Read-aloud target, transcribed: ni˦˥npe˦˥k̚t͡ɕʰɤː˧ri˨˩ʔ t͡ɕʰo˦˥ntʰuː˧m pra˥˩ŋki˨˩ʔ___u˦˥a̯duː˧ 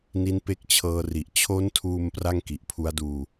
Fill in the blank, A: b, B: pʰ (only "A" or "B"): B